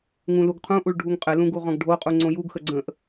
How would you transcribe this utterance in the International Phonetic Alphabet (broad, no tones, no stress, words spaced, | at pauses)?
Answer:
ŋũluɡqʰũʔuɭ ɖʱuŋqʼɘlũ ɡuʁɔ̃ɡɖʱoqʼu ŋ͡ǀõjuɡxə ɡ͡ǀə̃ʔ